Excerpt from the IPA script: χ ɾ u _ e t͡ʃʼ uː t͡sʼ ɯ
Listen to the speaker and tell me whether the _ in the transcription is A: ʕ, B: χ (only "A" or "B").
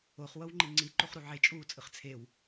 A